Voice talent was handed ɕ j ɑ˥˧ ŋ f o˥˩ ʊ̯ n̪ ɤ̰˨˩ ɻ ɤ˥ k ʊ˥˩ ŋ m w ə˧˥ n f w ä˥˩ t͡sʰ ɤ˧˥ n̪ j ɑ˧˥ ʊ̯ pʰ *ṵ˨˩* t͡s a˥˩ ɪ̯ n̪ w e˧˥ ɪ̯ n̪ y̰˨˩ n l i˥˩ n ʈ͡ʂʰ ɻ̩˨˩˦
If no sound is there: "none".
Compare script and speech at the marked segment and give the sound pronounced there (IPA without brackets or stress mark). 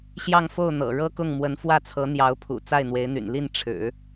ṵ˨˩